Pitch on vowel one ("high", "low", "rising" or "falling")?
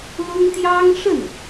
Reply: high